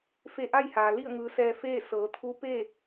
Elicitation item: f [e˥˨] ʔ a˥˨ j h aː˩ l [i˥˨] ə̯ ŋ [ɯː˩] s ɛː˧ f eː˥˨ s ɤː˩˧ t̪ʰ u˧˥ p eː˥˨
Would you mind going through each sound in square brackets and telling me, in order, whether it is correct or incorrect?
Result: incorrect, correct, incorrect

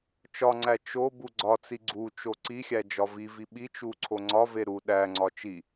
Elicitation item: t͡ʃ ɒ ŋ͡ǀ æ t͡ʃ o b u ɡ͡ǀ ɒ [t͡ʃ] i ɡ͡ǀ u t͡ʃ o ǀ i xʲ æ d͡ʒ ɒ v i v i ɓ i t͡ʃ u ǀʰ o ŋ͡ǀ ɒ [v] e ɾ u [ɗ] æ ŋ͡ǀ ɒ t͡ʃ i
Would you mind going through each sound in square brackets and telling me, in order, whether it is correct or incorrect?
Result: incorrect, correct, correct

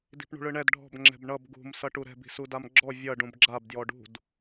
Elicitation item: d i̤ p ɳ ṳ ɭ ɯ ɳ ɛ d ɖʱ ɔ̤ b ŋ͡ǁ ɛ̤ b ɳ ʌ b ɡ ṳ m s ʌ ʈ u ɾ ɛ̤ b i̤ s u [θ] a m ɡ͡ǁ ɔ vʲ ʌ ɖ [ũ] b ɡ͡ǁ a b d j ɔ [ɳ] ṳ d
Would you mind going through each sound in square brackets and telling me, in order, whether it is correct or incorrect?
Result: incorrect, correct, incorrect

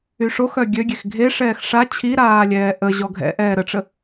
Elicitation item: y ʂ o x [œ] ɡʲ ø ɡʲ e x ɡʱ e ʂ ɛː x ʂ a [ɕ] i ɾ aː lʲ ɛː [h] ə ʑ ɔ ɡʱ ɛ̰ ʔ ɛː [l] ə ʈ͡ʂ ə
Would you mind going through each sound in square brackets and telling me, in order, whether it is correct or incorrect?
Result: correct, incorrect, incorrect, incorrect

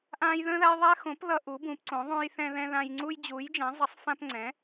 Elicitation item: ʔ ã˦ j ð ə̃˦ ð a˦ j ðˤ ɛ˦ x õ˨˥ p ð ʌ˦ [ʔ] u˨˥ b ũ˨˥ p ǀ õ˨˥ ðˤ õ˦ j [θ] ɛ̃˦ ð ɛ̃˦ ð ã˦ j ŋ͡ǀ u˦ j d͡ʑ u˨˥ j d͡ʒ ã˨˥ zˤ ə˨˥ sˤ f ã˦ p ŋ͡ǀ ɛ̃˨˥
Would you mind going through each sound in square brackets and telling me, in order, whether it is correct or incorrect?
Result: correct, correct

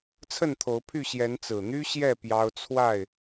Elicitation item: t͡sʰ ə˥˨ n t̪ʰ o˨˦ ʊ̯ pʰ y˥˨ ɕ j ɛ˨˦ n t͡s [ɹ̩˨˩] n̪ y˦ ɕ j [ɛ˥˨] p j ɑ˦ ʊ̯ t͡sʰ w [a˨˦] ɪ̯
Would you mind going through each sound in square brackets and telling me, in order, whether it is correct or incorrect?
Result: correct, correct, incorrect

